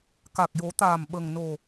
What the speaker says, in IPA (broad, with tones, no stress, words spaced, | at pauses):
ka˨˩k̚jo˨˩˦t̪aː˨˩m ɓə˨˩ŋno˨˩